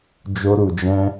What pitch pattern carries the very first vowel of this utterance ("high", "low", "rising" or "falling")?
high